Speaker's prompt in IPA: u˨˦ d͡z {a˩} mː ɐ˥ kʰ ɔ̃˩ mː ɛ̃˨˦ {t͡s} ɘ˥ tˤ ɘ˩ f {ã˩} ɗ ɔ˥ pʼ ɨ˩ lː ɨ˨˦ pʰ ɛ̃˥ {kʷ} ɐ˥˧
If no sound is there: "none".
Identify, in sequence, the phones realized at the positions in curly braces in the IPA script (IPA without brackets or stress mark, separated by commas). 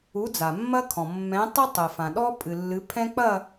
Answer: a˩, tˤ, ã˩, k͡p